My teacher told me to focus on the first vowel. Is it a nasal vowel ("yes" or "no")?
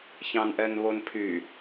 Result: yes